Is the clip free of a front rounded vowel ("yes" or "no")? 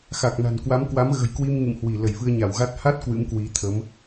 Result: yes